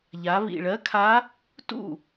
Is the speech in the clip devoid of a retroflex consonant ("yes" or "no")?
no